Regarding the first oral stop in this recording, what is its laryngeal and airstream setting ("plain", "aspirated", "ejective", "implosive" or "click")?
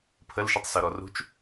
aspirated